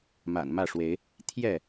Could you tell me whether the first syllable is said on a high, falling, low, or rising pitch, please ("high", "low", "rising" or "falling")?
low